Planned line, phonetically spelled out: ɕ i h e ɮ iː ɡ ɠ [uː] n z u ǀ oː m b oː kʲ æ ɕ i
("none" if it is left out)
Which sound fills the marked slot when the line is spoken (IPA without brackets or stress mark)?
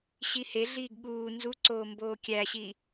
uː